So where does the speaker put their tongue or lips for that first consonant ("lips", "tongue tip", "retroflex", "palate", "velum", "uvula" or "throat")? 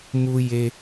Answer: lips